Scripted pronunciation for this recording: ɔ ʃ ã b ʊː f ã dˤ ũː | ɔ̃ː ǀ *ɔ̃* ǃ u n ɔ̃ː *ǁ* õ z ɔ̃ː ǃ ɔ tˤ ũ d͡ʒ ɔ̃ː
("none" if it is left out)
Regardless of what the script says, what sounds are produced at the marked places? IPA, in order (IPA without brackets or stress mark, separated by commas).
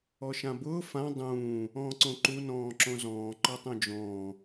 õ, ǁ